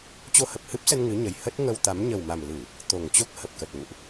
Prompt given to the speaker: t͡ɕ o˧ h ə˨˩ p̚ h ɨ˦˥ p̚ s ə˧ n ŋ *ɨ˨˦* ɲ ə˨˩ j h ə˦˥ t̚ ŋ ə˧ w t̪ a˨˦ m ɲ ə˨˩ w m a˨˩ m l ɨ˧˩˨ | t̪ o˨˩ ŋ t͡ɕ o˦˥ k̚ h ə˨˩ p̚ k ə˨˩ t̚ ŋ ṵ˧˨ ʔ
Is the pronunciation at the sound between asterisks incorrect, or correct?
correct